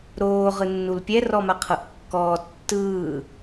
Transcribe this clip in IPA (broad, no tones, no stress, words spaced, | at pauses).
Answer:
ɾoː ʁɯnːulpʲɛ rɔmaqʰɤʔkːɔː tːɯː